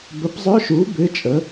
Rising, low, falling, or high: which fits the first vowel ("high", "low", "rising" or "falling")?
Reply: rising